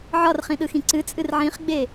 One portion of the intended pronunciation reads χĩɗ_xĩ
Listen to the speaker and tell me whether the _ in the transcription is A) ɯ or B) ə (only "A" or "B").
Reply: A